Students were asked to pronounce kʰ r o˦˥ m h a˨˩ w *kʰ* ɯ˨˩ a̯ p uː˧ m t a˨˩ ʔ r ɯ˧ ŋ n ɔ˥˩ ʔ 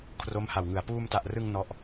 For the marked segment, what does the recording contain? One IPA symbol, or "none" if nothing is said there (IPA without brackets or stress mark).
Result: ŋ